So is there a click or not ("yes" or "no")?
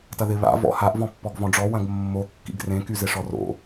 no